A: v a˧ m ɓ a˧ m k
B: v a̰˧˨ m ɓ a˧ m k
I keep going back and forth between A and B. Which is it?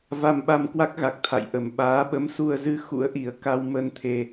A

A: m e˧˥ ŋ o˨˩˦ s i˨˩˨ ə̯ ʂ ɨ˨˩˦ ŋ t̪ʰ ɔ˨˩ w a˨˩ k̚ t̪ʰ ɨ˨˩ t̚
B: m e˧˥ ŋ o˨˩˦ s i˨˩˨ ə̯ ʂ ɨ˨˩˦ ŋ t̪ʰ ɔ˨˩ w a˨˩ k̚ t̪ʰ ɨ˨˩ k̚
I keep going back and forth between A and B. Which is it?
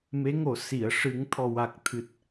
A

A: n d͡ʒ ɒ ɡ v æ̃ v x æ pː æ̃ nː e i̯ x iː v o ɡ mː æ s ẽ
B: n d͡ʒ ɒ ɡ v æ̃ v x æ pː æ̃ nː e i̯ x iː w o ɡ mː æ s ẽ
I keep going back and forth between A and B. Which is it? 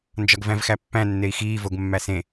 A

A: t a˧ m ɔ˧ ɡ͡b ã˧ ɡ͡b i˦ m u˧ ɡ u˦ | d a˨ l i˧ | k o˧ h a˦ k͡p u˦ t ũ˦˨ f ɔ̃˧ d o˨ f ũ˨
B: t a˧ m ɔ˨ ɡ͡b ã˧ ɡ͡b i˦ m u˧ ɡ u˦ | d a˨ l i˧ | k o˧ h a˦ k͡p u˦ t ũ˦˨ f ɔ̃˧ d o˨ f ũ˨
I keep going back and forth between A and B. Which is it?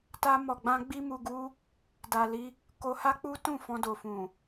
B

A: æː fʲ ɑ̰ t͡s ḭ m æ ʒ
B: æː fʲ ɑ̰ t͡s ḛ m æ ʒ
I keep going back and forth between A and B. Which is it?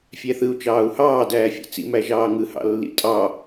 A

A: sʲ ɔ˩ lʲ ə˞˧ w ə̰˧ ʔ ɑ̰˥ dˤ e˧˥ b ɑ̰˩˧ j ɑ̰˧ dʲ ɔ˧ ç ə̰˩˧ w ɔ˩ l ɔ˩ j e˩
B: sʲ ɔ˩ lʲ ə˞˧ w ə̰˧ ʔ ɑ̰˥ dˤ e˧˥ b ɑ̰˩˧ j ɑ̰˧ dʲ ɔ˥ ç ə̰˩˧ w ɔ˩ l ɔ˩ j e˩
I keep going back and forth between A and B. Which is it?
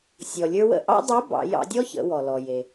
B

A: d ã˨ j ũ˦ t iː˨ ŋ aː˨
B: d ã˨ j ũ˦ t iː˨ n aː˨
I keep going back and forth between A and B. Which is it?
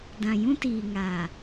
A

